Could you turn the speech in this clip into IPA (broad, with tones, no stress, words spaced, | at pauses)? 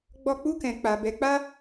ɡ͡bɔ˧ k͡pu˧kɛ̃˨ k͡pa˨ bɛ˨˦k͡pa˦